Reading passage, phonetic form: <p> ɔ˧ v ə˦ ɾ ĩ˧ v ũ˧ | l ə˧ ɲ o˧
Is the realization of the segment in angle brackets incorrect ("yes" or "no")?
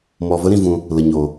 yes